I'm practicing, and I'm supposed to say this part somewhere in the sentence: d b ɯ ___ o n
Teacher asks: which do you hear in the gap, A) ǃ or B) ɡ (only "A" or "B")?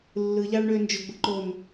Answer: A